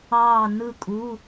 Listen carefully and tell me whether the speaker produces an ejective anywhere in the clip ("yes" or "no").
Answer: yes